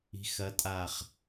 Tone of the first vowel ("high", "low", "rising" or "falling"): rising